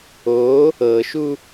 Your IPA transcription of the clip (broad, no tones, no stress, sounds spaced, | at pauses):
o | ɤ ʃ u